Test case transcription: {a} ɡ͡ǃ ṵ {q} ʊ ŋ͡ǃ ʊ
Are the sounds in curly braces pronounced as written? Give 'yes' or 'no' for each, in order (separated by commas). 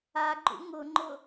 yes, no